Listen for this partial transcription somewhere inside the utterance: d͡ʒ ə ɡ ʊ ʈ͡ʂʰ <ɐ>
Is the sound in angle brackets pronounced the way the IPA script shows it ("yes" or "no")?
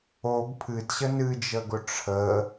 no